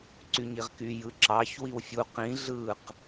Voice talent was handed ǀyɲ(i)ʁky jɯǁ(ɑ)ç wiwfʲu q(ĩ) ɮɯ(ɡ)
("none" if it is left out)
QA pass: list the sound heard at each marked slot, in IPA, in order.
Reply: i, ɑ, ĩ, q

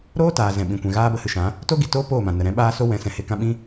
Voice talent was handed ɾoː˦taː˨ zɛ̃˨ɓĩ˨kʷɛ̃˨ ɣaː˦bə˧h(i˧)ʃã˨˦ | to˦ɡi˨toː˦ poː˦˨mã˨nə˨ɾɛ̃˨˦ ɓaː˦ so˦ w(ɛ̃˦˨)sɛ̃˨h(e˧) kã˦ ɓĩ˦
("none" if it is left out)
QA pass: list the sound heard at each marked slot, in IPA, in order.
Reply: ɨ˧, ɛ̃˨˦, e˧

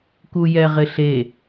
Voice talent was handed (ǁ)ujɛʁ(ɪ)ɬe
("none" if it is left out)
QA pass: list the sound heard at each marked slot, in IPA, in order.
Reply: k, ɪ

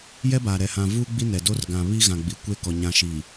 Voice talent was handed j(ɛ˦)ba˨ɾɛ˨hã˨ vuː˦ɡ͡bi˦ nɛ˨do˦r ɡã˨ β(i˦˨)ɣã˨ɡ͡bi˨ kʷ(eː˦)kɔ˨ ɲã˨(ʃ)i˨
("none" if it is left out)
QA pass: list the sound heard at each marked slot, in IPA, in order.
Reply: ɛ˦, i˦, e˦, ʃ

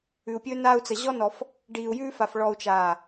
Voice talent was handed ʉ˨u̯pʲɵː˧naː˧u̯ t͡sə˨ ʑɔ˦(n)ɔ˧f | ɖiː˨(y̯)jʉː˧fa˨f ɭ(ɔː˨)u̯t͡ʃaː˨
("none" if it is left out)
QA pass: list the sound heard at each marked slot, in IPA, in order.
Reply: n, u̯, ɔ˨

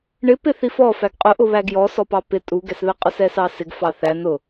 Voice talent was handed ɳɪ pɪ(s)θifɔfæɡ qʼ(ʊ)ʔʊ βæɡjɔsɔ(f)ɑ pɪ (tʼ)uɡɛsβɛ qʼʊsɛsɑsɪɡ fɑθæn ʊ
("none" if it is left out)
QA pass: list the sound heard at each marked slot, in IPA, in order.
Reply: none, ʊ, p, tʼ

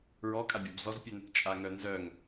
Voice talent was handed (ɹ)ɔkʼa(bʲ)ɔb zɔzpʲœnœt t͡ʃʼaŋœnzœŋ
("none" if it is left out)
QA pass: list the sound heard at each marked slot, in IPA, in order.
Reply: ɹ, bʲ

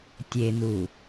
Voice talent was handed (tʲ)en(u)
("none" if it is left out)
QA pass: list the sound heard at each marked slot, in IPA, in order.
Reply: tʲ, u

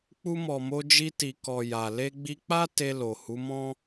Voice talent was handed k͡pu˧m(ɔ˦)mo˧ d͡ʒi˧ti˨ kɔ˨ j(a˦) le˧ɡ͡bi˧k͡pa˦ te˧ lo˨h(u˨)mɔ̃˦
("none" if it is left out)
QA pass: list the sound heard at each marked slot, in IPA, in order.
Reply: ɔ˨, a˨, u˨˦

